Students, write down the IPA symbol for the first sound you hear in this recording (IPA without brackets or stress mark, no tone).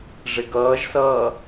ʐ